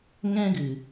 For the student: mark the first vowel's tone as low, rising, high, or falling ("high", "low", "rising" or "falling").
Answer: high